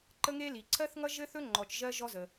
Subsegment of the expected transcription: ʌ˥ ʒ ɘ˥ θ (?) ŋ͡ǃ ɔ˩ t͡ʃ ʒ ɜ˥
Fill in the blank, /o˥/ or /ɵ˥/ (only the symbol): ɵ˥